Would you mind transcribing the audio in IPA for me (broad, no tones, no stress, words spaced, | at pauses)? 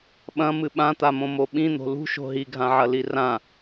ɓɐ̃mɨ ɓãt̪amõmo ɓĩn̪o̤ lṳʃo̤ ɦiɡʱãʕɐli rã